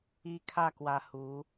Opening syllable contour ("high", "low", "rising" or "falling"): high